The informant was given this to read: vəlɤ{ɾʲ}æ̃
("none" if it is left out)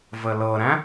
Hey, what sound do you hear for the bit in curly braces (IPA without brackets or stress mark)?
ɾ